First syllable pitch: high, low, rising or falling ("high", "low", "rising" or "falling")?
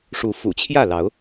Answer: rising